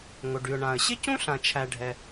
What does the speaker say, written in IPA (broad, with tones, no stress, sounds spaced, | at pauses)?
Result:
ŋ o˩ ɖ y˩ ʊ̯ ɳ ã˩ ə̯ ɕ ɪ˥ c ũ˥ ɬ ã˩ t͡ʃʰ æ˩ ɖʱ ɛ˩